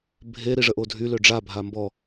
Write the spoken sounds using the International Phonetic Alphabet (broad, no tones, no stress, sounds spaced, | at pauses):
bʱ e ɾ i ʐ ə ʔ o dʱ y l ø ɖ͡ʐ a bʱ a m b ɔ